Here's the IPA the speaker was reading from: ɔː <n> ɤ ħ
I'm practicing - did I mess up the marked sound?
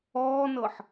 no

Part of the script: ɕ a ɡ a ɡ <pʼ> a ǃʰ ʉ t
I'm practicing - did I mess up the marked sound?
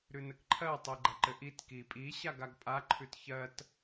no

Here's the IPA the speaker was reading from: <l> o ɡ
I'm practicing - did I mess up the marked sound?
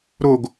yes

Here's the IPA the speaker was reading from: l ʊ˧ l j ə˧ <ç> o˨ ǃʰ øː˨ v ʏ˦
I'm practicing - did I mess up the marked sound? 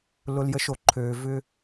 yes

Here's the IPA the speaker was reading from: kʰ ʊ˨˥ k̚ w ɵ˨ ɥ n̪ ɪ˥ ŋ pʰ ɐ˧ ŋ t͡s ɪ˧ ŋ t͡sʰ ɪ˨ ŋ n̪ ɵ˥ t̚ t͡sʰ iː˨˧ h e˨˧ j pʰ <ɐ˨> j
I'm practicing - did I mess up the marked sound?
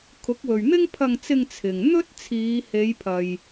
no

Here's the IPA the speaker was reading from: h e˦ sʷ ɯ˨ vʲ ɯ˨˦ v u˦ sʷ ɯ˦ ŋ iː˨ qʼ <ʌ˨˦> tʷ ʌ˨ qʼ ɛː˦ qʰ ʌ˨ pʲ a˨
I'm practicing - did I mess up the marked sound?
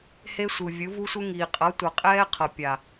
no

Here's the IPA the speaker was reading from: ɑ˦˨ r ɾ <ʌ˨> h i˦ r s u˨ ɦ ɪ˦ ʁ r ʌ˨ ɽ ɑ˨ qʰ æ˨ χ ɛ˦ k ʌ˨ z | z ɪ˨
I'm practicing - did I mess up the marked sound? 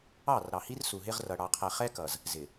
yes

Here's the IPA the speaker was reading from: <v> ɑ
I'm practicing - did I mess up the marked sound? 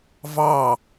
no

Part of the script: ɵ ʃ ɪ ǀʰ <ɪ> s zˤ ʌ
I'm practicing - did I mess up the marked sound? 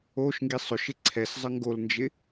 yes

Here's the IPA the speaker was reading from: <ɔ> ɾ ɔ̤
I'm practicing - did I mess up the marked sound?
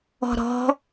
yes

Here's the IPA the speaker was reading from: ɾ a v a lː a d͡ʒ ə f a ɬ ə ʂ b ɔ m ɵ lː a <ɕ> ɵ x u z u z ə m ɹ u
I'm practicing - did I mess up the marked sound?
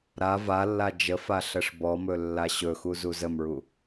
no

